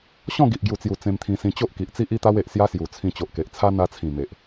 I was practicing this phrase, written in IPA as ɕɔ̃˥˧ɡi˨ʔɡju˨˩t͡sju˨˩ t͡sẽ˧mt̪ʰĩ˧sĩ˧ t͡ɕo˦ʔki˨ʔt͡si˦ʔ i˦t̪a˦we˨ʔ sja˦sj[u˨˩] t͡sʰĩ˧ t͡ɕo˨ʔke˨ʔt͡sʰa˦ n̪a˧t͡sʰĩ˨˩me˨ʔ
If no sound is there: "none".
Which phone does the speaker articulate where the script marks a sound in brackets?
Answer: u˨˩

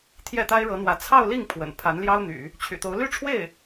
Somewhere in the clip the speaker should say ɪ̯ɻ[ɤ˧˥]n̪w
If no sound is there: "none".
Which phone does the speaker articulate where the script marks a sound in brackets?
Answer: ɤ˧˥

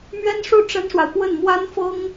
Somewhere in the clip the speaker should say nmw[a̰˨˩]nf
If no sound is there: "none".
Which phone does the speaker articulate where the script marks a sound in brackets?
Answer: a˥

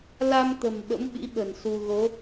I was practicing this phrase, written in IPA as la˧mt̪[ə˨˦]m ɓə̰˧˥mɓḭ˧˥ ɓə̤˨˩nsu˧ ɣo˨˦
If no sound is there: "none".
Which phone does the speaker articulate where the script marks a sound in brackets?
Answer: ə̤˨˩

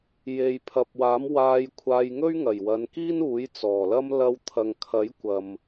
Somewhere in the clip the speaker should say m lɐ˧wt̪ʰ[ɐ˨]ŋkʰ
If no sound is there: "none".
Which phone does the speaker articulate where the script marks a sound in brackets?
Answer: ɐ˨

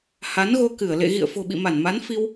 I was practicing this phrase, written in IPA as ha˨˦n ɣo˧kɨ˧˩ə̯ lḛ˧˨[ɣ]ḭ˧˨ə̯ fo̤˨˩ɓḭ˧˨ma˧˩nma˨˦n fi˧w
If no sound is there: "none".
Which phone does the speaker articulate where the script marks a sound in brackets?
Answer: ɣ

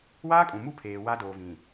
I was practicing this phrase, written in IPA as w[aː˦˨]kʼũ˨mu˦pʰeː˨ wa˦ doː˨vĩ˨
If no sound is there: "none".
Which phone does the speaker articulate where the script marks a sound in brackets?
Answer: aː˦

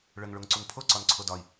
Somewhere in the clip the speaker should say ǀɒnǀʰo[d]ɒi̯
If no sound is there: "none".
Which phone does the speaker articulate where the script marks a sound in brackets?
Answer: d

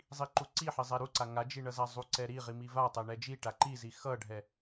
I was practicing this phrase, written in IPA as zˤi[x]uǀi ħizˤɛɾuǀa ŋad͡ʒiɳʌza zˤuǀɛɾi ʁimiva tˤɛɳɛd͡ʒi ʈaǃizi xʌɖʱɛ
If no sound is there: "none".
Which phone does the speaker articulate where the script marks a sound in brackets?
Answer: ǃ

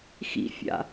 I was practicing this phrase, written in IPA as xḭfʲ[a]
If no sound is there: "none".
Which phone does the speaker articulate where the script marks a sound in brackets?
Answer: a̰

